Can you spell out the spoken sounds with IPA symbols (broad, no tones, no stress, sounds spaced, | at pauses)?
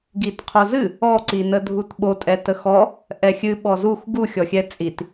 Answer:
ɡ i t qʰ o z ɨ | ɔ ǀ i n ə dʱ u t ɓ o tʼ ɛ t ə x ɔ | ʔ ɛ xʲ ɨ ɓ ɔ z u x ɡ u xʲ ɔ xʲ ɛ t͡sʼ i t